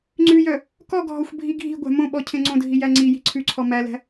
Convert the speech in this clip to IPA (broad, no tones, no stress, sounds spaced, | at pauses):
ŋ͡ǀ ʉ j œ | k ɔ ɡʱ ɔ xʷ bʱ i ɡʱ i̤ ɡʷ æ̤ m õ ɓ ɔ cʰ ẽ ŋ͡ǀ õ dʱ i j æ ŋ͡ǀ i j i̤ ǀʰ ʉ ǀʰ ɔ m æ l æ̤